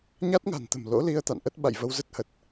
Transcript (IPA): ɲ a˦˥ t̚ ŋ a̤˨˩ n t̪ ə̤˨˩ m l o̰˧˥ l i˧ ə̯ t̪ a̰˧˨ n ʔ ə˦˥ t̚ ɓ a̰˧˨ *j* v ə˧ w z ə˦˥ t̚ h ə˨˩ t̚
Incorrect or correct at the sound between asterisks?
correct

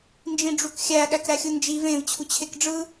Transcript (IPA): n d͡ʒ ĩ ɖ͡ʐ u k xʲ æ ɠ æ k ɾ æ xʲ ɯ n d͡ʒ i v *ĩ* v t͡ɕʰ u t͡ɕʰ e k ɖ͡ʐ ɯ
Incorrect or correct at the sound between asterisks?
incorrect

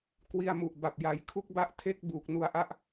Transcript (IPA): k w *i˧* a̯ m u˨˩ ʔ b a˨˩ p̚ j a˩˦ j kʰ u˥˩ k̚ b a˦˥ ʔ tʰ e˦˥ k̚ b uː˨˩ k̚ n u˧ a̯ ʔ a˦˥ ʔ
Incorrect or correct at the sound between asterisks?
correct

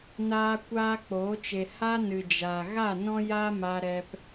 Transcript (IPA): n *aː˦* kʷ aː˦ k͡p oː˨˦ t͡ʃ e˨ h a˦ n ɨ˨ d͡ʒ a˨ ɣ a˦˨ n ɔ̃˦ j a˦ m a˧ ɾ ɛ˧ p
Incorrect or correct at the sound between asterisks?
correct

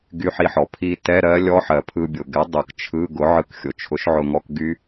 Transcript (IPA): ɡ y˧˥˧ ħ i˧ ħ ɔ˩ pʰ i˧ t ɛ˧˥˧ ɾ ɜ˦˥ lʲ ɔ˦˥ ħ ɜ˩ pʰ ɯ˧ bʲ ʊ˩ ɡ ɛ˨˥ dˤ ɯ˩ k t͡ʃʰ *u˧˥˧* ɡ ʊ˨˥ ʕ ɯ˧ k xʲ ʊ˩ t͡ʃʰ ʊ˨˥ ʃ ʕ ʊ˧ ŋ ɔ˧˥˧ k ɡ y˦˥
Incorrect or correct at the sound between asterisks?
incorrect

